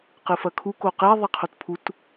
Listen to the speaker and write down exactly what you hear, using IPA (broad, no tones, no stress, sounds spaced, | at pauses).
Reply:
q ɨ f ɐ kʰ u k o q e ðˤ i qʰ o t pʰ u t